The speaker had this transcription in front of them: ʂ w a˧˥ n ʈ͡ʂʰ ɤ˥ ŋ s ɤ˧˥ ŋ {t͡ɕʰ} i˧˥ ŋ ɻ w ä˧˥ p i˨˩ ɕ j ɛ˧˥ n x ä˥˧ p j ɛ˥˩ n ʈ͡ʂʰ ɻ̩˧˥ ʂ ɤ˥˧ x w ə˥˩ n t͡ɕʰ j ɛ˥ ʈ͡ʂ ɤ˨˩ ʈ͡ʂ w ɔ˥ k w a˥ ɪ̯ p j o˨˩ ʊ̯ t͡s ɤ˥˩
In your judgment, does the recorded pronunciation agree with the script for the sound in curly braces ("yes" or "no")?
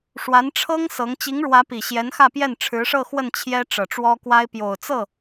no